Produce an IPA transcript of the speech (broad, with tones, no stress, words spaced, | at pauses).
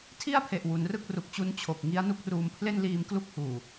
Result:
tʰi˥˩a̯pʰe˨˩ʔ wu˩˦nrɯ˥˩k̚ ru˨˩k̚t͡ɕu˦˥n t͡ɕʰo˨˩k̚ŋi˦˥a̯ nu˥˩k̚ruː˧m pʰle˥˩nliː˧mklu˥˩k̚ huː˨˩